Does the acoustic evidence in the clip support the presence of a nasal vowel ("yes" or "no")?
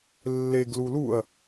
no